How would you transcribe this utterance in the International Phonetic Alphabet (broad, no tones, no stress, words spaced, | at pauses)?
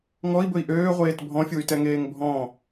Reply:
ŋɔi̯bɵi̯ ʔøːʁʷeːt bʱɔ̃fʲuy̯tɛŋeːŋ bʱɔ̃